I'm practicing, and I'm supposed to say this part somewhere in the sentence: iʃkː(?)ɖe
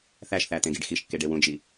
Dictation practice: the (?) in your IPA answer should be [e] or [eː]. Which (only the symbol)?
e